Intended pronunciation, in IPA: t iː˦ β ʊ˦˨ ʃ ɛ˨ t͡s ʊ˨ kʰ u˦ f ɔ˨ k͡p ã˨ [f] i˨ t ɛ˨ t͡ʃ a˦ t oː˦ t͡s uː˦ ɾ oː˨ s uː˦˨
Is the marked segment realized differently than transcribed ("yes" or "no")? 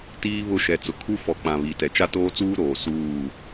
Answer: yes